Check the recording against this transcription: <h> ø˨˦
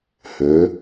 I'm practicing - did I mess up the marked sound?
no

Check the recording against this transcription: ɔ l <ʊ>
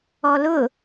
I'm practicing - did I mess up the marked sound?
no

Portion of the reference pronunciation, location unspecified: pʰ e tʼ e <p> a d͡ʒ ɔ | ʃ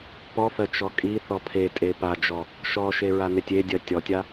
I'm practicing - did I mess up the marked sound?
no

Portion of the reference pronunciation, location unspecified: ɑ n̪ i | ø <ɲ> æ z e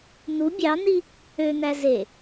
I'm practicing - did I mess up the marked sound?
yes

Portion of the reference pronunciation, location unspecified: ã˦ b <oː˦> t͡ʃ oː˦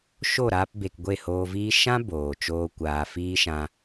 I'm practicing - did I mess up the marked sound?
yes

